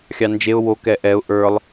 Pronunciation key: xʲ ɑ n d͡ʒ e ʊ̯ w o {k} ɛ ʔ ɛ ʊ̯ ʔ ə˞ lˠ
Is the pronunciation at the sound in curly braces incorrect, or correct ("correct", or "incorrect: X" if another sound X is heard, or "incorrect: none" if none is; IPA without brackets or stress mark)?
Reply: correct